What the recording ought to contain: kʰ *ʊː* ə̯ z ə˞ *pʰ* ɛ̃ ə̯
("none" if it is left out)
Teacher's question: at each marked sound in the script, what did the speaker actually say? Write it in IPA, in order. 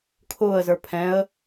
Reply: ʊː, pʰ

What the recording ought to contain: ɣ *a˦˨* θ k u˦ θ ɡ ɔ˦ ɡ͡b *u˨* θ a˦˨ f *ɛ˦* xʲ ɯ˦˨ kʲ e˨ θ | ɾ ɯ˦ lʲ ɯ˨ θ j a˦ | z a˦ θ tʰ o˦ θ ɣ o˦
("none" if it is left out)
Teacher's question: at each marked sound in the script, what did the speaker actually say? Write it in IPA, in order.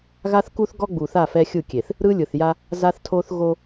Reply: a˦, u˨, ɛ˦

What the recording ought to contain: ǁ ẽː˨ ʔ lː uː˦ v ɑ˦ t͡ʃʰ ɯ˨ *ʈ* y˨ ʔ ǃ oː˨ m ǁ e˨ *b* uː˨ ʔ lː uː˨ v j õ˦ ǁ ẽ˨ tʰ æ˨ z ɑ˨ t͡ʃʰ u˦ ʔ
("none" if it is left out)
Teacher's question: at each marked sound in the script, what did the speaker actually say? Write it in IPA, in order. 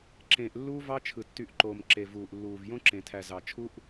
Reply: tː, v

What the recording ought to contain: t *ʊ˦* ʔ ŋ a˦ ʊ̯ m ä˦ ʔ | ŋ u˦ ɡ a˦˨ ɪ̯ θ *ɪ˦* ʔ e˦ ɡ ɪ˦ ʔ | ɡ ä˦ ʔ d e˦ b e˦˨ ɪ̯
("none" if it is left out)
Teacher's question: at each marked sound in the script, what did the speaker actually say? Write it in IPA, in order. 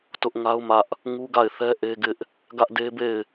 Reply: ʊ˦, ɛ˦

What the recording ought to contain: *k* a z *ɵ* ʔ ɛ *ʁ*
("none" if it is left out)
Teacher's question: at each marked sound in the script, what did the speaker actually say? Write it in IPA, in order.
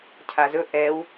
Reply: cʰ, ɵ, w

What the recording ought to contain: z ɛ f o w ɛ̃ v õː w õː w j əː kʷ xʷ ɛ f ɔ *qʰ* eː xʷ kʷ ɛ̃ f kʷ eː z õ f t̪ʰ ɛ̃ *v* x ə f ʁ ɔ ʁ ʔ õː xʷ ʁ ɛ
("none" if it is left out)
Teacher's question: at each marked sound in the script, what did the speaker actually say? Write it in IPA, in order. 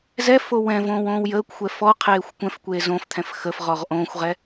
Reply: qʰ, f

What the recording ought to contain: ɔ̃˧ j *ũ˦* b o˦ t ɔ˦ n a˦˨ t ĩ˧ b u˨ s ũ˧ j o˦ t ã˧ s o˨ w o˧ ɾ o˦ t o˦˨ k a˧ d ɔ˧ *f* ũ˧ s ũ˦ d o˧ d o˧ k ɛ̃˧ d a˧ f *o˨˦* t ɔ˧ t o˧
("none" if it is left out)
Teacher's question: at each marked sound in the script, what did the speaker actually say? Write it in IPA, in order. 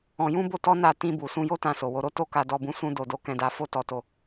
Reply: ũ˦, b, o˦

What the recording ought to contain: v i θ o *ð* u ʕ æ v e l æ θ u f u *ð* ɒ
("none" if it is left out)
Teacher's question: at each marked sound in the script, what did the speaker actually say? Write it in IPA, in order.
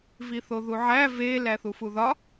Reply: ð, ð

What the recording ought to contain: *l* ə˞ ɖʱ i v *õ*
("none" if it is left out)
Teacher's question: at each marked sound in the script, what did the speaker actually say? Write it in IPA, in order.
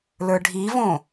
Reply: l, õ

